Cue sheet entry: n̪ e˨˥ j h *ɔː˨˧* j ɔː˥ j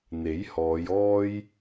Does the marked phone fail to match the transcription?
no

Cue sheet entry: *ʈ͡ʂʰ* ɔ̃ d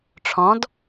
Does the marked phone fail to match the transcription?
no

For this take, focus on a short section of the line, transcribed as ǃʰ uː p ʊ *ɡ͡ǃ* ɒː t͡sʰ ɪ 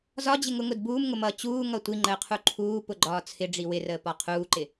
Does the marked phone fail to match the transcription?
no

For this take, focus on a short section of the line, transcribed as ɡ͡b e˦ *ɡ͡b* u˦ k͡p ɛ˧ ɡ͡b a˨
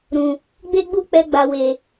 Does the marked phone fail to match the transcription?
no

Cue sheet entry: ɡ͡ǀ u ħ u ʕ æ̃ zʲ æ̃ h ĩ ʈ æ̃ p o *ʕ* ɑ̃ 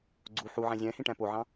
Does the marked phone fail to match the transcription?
no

